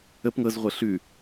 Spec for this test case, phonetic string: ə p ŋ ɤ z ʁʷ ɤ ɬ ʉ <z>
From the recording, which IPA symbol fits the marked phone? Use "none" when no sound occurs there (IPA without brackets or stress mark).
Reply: none